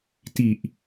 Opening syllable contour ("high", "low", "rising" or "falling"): low